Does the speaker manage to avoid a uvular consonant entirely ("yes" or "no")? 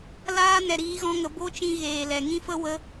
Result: yes